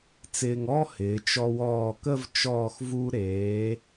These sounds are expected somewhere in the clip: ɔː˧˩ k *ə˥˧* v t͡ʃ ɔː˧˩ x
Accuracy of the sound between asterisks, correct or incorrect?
correct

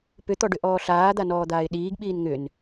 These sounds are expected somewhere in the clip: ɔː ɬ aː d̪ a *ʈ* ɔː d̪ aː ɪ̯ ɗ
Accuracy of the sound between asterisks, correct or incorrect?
incorrect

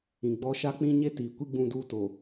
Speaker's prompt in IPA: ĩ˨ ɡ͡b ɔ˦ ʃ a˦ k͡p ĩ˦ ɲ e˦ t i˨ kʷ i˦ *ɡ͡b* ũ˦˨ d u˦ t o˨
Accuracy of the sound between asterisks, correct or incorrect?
correct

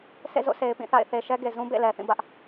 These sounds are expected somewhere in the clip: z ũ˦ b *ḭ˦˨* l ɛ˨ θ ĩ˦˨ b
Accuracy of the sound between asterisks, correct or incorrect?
incorrect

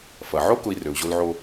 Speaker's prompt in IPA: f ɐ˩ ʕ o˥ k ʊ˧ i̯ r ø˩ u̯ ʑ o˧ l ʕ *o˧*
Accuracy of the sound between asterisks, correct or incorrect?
correct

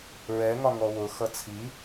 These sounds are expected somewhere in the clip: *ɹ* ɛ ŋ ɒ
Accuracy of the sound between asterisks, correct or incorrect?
correct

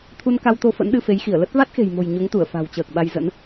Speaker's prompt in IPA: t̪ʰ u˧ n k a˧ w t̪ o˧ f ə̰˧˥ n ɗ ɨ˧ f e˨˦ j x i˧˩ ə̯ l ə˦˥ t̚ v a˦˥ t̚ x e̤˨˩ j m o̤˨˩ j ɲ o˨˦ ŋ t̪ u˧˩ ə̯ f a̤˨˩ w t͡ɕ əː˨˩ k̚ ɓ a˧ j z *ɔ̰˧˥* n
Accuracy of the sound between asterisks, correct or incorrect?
incorrect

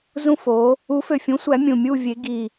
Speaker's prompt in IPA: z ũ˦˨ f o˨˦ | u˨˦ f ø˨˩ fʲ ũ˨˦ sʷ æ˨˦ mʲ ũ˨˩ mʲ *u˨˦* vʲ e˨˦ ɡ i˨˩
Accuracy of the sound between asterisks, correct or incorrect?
incorrect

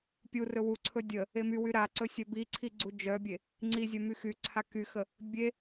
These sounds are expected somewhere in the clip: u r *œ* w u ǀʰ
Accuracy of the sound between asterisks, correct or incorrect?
incorrect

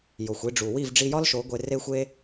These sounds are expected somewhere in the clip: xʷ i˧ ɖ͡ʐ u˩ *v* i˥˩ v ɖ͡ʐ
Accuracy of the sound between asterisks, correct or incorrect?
incorrect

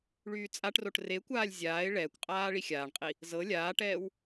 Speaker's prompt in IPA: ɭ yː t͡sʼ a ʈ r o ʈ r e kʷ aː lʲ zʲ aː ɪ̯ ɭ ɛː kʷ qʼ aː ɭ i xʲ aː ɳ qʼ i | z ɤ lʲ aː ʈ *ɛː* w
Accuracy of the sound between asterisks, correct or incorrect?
correct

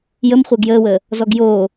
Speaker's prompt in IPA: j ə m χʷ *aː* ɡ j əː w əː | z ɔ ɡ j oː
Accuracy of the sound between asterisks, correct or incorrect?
incorrect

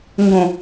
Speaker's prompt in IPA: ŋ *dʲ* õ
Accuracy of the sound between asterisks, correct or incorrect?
incorrect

